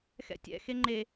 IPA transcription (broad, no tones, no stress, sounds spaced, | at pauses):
x ɛ̰ tʲ ɛ̰ x e ŋ͡ǃ e